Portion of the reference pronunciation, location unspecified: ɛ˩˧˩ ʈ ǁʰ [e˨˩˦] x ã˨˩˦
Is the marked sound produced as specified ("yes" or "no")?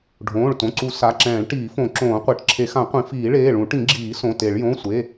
yes